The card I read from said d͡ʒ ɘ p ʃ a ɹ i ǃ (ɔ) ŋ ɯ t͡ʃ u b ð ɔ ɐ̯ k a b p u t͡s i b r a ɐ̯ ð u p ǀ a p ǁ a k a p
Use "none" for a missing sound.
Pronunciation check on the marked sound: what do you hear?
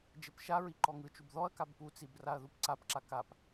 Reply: ɔ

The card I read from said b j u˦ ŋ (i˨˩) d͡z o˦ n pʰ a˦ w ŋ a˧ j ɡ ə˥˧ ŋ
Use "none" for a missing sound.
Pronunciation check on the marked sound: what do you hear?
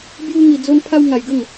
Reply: i˧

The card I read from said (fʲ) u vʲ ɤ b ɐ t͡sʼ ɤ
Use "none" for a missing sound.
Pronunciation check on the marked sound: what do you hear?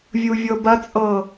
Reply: vʲ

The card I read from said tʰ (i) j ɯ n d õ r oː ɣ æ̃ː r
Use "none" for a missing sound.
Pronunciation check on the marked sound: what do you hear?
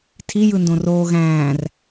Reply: i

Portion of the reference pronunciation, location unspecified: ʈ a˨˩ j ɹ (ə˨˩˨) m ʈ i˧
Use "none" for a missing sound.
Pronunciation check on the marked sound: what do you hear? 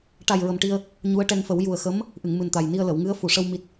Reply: ə˨˩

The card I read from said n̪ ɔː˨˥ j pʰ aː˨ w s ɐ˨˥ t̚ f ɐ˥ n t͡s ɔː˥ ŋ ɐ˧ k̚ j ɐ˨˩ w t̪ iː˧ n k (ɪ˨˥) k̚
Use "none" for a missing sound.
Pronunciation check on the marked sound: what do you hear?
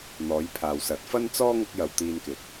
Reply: ɪ˨˥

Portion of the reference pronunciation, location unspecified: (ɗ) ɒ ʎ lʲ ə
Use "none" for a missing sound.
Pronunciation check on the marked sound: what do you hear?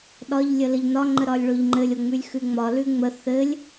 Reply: ɗ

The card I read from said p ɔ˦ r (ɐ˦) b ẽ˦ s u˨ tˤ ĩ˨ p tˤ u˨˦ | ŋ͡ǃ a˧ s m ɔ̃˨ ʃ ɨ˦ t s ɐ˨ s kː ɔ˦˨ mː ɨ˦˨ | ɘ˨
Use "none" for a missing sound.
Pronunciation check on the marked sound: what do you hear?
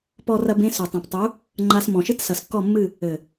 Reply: ɐ˦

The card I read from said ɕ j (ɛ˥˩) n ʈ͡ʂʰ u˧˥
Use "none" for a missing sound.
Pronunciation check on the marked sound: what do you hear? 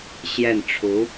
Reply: ɛ˥˩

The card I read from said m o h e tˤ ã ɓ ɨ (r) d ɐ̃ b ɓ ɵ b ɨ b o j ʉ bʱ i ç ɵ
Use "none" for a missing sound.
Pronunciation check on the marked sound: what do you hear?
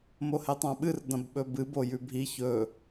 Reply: r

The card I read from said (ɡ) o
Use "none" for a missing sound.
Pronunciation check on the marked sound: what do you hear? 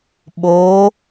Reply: ɓ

